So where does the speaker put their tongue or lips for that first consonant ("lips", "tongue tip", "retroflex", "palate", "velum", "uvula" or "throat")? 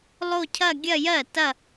tongue tip